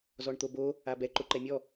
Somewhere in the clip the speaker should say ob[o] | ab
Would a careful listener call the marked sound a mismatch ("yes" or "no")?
no